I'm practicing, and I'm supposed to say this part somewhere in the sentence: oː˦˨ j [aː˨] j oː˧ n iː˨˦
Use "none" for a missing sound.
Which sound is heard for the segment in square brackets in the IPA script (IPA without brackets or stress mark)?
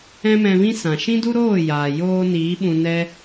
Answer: aː˨